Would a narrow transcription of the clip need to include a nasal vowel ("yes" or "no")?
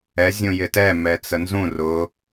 yes